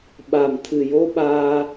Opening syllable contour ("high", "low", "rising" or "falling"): low